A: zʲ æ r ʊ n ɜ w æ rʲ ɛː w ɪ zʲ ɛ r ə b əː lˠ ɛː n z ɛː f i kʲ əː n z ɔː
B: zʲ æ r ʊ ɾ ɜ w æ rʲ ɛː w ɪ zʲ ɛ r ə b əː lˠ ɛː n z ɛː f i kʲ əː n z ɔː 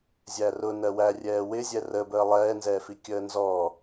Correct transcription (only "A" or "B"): A